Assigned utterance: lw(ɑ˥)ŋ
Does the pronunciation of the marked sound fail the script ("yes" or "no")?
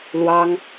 no